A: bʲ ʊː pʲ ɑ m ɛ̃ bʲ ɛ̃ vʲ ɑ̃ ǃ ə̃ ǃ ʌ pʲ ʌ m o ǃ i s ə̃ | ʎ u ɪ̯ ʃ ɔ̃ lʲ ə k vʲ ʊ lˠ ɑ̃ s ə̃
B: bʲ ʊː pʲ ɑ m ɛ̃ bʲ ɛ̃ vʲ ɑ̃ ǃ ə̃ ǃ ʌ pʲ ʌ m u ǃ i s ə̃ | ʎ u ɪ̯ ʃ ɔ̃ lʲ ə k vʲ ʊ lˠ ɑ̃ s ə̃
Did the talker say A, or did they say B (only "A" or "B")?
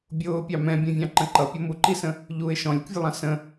B